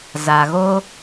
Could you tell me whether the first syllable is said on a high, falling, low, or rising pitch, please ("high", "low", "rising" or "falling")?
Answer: low